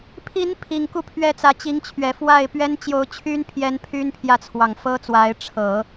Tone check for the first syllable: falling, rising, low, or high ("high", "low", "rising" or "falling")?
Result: rising